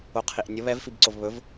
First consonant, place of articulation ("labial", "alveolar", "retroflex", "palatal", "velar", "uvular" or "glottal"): uvular